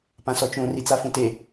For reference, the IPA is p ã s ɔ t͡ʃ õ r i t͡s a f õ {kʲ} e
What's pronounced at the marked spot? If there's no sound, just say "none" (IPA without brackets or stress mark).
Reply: t